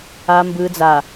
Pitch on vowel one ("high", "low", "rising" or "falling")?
low